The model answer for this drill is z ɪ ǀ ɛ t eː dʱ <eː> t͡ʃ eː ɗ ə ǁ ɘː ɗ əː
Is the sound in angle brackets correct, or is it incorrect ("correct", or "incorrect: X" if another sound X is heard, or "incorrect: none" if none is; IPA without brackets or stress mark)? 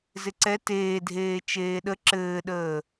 correct